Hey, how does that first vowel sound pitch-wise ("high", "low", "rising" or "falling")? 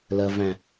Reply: low